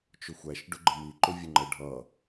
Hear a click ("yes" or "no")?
yes